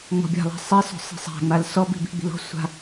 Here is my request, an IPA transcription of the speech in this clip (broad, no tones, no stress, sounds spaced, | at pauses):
ŋ͡m ɔ̤ bʲ a̤ lˠ æ̤ sˤ i s ɔ̤ sˤ i̤ sˤ æ̤ ŋ͡m a l s ɔ b i̤ b i̤ ɡ͡b i̤ l ɔ̤ sʷ a̤